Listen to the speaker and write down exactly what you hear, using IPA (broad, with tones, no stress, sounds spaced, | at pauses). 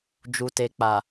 d͡ʒ u˨ t e˨ k͡p a˨